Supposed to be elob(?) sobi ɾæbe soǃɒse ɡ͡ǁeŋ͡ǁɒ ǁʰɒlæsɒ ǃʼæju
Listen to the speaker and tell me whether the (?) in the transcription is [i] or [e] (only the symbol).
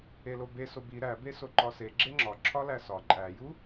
e